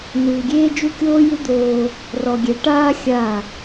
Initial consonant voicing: voiced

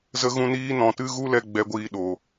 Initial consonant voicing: voiced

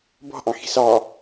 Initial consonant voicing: voiced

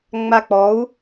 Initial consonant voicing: voiced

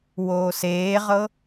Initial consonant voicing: voiced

